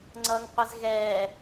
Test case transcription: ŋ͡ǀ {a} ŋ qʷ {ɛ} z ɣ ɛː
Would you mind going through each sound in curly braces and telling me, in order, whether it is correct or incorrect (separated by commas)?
incorrect, correct